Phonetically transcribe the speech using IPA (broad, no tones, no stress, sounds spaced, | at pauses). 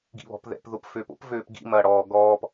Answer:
ɡ ḭ β ɔ̤ p ð ɛ̰ p ð ʊ p f øː p o̰ p v øː p ɡ ḭ m ɐː ɽ ɔː ɡ ɔː p